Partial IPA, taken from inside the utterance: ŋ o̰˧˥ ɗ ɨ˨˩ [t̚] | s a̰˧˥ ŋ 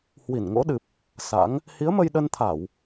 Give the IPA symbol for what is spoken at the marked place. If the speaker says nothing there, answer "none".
p̚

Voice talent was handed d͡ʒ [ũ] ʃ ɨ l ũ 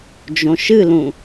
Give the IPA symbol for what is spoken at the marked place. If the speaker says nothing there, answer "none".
õ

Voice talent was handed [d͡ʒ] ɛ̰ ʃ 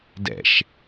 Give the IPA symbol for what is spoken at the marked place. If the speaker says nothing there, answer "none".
d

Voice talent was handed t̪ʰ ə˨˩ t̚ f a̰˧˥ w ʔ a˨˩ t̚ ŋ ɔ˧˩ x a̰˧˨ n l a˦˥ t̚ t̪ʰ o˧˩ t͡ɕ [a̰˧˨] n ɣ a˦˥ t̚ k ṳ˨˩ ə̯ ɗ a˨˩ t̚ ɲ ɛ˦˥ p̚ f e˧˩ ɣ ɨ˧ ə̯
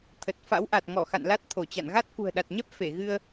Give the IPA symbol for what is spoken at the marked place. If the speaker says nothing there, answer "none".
a̰˧˨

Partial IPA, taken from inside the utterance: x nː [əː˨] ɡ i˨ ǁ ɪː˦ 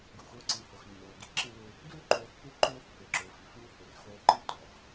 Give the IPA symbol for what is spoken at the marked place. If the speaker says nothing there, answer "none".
ʊː˨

